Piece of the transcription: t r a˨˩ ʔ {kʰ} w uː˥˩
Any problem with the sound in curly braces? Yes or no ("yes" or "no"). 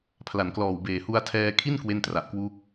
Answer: yes